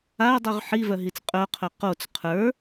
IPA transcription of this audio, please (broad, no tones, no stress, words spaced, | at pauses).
ajdˤʉʁ ħivœɦit͡s qʼœqʰœ qot͡s qʰə˞